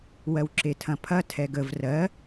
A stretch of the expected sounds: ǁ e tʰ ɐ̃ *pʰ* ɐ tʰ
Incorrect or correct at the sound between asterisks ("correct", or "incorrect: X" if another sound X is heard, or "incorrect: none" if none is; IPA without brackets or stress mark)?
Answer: correct